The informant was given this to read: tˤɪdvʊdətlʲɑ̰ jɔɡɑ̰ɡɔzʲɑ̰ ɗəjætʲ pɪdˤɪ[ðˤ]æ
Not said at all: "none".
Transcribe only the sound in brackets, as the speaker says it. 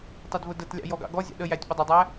dˤ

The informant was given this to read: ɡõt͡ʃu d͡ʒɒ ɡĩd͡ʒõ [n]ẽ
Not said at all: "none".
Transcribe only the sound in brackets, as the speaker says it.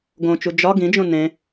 n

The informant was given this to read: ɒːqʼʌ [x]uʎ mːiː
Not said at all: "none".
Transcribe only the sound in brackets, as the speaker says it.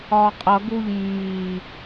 ɡ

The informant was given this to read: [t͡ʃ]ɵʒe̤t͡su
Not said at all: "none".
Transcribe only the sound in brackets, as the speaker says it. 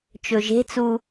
t͡ʃ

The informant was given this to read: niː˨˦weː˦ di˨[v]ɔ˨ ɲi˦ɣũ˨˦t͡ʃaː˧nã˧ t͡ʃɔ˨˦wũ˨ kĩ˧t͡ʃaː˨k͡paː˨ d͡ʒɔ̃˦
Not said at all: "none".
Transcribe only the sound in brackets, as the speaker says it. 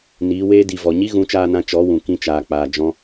v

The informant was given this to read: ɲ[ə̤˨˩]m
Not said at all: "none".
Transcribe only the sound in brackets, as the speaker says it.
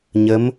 ə˨˦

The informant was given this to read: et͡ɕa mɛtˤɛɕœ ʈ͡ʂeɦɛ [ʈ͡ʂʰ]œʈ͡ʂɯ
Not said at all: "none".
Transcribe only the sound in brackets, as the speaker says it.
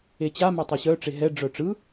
ɖ͡ʐ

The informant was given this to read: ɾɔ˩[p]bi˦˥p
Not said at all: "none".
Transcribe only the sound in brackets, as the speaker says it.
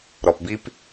p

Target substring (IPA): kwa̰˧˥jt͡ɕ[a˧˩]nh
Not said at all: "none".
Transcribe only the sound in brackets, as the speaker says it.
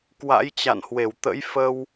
a̰˧˨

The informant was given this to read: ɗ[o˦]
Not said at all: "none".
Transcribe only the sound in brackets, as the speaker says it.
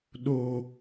oː˦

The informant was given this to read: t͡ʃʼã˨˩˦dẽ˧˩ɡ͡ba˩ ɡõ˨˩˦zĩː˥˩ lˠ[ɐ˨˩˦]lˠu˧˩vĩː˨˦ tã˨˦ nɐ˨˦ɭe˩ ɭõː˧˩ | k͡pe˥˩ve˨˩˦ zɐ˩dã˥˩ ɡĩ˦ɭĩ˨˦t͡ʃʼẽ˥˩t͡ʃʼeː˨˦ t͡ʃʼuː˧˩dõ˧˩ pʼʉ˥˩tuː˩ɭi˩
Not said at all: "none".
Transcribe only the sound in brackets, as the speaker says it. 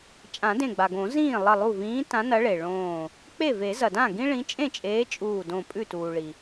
ɐ˧˩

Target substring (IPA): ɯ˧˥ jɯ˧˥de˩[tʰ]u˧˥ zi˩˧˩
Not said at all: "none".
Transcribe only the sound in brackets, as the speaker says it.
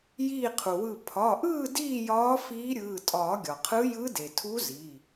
tʰ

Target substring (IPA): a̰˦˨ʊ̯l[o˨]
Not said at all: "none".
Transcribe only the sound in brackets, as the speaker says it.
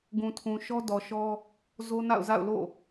o̰˦˨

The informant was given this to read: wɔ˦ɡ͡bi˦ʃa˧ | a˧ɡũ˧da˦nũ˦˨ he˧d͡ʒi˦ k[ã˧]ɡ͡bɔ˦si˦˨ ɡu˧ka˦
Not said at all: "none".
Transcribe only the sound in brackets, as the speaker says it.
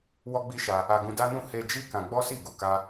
ã˧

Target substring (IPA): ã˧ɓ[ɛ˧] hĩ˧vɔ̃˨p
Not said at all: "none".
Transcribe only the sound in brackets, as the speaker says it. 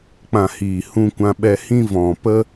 ɛ˧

